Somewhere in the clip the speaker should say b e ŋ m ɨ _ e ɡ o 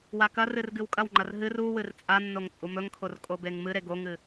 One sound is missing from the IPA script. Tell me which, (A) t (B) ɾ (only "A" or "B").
B